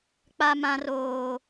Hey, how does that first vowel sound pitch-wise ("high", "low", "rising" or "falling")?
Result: high